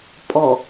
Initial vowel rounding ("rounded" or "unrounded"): rounded